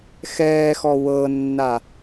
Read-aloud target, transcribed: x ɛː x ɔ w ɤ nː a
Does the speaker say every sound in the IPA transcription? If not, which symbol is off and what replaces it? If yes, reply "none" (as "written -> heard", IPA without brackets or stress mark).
none